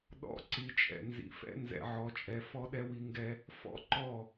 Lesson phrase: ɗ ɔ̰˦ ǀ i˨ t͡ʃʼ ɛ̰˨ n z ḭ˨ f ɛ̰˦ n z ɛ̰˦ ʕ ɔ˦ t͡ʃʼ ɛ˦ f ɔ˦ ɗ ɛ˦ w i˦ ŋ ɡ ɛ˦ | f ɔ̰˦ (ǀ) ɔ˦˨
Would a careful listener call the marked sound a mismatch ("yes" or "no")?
yes